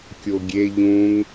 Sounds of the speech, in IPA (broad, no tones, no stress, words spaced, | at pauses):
kʲoɡʲe ʎũŋ